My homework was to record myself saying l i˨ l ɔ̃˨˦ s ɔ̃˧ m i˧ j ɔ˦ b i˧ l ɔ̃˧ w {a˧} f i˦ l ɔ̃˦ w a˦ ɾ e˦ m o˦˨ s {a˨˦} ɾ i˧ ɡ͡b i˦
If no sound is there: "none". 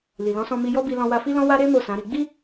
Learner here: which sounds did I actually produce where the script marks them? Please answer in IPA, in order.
a˧, ã˨˦

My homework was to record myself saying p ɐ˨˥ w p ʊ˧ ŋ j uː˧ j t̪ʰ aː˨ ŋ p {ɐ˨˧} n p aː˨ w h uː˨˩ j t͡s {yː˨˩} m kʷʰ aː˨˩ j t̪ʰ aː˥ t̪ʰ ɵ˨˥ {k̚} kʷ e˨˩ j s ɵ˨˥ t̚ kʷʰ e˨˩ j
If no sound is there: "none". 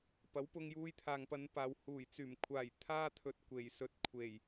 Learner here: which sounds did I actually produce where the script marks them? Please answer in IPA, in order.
ɐ˨˧, yː˨˩, t̚

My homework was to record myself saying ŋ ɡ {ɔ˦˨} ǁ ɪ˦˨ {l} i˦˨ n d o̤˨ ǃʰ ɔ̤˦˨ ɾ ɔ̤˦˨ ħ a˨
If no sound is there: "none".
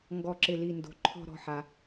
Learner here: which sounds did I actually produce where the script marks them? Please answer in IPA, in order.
ɔ˦˨, l

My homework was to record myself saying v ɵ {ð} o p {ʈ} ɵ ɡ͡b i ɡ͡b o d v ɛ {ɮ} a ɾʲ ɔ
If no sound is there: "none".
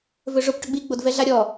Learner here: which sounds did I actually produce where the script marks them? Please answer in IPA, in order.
ʐ, ʈ, ɮ

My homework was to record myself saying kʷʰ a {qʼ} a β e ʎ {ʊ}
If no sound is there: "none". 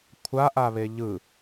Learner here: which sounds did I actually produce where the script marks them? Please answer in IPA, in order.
ʔ, ɯ

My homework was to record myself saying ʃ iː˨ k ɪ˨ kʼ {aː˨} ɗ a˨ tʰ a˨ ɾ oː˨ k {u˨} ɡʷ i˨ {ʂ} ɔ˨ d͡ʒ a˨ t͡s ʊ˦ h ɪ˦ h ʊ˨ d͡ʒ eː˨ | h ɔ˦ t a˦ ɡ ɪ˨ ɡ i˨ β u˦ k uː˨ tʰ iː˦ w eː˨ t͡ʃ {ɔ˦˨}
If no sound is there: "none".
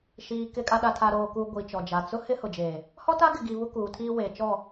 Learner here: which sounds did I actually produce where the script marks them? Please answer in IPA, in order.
a˨, u˨, t͡ʃ, ɔ˦˨

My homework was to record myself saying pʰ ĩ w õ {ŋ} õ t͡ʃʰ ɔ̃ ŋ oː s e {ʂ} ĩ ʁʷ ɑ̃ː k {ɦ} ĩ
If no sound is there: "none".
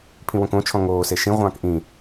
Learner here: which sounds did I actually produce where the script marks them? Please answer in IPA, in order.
k, ʃ, ʔ

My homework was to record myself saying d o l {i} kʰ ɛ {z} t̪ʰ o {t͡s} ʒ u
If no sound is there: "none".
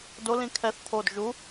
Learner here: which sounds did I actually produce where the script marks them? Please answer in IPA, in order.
ĩ, θ, d

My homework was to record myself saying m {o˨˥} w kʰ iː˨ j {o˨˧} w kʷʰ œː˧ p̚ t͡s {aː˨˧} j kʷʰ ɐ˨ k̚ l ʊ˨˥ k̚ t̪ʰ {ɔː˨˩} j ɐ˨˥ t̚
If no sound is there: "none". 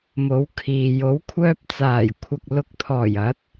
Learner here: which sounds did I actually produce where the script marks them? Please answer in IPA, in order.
o˨˥, o˨˥, aː˨˩, ɔː˨˩

